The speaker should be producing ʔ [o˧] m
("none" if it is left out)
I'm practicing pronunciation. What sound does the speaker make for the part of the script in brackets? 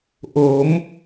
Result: o˩˦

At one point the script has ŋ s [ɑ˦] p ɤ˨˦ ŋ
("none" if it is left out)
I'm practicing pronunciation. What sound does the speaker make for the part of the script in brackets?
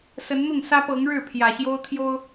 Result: ä˦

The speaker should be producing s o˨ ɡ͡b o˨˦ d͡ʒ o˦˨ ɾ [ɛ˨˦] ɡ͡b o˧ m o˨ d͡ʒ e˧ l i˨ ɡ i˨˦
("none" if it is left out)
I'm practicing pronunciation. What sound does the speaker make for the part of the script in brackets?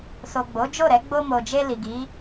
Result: ɛ˨˦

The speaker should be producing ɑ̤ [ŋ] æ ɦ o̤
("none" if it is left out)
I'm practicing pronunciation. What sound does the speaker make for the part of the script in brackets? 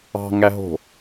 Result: ŋ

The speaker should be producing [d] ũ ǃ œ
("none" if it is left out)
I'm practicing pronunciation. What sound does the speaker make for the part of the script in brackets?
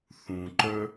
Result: θ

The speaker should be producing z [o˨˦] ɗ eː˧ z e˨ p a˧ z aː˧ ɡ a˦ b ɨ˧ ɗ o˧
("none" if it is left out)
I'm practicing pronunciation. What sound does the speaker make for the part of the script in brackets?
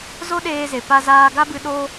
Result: o˦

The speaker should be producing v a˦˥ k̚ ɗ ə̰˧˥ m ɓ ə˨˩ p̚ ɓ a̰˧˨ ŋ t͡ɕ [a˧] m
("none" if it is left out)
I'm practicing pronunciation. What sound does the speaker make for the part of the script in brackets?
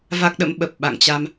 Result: a˧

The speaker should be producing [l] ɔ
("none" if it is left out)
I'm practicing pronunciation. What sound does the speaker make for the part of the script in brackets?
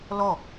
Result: l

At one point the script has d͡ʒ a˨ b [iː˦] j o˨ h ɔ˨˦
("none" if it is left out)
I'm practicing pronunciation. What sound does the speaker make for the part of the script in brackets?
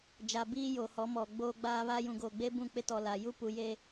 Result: iː˦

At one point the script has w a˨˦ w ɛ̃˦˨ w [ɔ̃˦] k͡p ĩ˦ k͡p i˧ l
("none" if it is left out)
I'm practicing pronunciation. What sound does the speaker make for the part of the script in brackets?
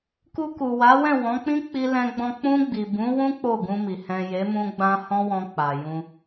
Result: ɔ̃˨˦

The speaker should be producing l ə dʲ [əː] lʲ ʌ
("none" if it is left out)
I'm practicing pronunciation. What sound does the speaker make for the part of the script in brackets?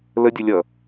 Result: ə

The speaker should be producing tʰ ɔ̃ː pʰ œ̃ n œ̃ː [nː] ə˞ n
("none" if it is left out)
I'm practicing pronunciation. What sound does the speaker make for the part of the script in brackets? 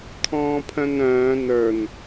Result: n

